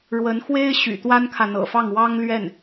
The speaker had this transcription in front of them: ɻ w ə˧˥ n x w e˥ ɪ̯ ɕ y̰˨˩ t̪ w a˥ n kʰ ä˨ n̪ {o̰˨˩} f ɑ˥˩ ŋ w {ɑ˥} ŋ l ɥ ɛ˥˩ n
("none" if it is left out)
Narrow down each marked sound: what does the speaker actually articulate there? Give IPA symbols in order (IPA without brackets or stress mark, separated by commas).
ɤ̰˨˩, ɑ˥